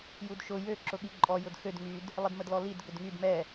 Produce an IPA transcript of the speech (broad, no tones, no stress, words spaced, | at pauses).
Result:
judʃʊ jø ǁʊɠiǃʼɔ jʊdxød ŋyd | lˠədmədlɔlid ɡʏdŋyd mɛ